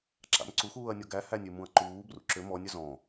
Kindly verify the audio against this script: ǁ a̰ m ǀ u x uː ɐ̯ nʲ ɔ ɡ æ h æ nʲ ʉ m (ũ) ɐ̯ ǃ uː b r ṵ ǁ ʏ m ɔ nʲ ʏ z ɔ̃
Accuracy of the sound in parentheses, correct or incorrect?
correct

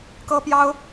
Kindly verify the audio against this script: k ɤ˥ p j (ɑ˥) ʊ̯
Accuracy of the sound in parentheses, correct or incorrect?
correct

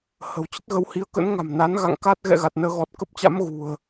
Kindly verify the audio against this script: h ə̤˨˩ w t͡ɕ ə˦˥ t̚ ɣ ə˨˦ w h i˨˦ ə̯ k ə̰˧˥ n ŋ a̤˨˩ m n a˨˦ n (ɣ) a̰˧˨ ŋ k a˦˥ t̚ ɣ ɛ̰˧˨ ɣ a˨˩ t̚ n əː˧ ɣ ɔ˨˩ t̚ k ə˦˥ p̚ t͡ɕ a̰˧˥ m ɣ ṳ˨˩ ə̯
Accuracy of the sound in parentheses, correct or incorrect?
correct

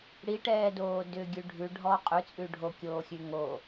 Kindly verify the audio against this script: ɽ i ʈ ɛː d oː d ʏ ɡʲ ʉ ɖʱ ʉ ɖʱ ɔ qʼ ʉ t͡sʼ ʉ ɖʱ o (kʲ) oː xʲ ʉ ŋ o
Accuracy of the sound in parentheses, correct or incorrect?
correct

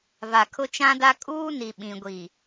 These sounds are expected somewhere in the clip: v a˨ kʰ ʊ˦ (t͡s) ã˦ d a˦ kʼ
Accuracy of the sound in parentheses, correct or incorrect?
incorrect: t͡ʃ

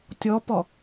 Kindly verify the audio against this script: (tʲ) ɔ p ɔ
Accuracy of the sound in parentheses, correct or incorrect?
correct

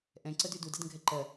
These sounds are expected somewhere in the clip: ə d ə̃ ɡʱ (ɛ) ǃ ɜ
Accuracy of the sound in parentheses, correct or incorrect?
correct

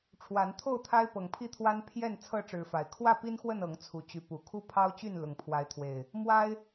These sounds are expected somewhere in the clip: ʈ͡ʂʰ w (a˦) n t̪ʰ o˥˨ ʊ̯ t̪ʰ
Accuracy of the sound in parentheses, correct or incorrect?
incorrect: a˨˦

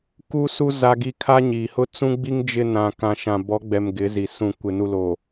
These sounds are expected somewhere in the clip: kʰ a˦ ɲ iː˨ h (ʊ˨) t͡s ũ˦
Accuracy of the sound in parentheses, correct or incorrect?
incorrect: ʊ˦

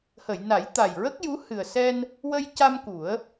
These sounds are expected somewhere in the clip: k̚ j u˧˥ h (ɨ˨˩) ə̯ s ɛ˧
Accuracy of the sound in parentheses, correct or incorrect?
correct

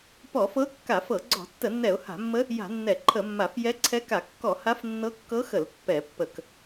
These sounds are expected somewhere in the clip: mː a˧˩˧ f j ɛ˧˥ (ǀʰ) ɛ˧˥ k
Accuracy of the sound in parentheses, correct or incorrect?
correct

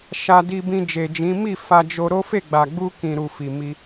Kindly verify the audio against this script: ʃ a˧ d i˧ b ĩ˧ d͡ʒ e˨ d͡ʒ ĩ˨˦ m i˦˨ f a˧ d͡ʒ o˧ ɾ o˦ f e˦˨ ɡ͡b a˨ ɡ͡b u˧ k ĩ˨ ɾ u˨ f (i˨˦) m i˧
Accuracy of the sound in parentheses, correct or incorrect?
incorrect: i˨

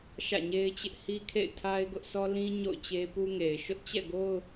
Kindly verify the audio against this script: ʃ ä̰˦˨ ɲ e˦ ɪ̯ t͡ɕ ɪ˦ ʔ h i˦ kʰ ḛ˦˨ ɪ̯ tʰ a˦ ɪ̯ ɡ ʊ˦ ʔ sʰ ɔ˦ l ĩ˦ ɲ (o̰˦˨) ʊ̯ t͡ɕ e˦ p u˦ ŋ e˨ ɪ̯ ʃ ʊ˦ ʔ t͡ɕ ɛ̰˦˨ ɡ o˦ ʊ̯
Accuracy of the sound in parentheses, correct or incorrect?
correct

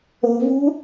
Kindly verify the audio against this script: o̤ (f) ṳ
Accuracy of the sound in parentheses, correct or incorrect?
incorrect: v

